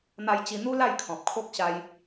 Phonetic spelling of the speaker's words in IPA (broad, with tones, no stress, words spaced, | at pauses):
n̪a˧jt͡ɕi˧n̪u˦ la˥˧jkʰɔ̃˨p̚kʰo˦k̚ ɕa˧j